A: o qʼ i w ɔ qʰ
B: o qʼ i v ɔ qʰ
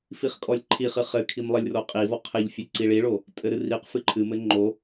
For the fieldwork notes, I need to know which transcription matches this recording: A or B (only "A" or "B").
B